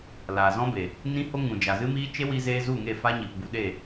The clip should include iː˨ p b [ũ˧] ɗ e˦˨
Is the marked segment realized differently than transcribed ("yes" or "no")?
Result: yes